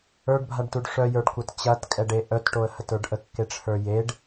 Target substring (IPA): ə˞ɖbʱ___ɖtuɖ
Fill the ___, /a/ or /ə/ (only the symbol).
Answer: a